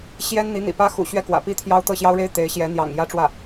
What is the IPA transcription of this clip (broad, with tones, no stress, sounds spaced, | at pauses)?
ɕ j ɛ˥ n n̪ i˧˥ n̪ ḭ˨˩ p ä˥ x ṵ˨˩ ɕ ɥ ɛ˥˩ k w ä̰˨˩ p i˥ t̪ʰ j ɑ˥ ʊ̯ t̪ ɤ˥˩ ɕ j ɑ˥ ʊ̯ ɻ e˥ ɪ̯ t̪ e˧˥ ɪ̯ ɕ j ɛ˧˥ n̪ j ɑ̰˨˩ ŋ j ä˥ ʈ͡ʂ w ä˥˩